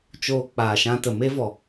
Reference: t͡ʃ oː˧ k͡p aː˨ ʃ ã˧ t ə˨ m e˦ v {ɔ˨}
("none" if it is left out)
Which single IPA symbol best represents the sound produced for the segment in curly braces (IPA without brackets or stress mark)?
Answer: ɔ˨